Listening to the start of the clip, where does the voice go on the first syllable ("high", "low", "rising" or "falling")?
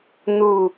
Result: low